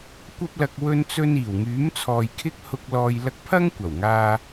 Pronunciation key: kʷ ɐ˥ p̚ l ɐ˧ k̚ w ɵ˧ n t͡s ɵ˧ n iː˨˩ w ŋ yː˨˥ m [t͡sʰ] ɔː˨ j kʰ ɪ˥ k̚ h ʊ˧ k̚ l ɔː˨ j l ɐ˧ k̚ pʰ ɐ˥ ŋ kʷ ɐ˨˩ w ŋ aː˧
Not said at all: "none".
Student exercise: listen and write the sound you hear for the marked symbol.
t͡sʰ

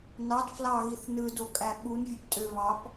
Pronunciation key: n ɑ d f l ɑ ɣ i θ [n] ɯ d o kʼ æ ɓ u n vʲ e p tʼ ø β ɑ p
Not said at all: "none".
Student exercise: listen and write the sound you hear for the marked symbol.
n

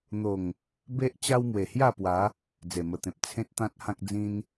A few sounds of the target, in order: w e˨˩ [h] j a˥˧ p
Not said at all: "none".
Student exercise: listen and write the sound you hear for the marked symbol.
h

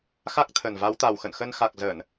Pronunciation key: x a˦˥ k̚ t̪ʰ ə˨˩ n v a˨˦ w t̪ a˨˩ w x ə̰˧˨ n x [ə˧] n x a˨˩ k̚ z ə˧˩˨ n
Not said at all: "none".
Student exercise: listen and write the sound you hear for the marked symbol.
ə˧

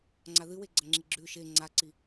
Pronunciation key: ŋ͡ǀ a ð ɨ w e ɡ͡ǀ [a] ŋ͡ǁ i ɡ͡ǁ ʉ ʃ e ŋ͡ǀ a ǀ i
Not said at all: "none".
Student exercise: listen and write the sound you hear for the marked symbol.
ɐ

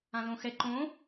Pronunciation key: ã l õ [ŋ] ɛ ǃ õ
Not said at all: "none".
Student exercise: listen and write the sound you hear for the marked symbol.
x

